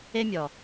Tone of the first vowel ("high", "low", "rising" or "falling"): high